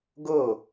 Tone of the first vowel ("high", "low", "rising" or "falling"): falling